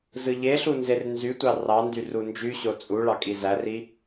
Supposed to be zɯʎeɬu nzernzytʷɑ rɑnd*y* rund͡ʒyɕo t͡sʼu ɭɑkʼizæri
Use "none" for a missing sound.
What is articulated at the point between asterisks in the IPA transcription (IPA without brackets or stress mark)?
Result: y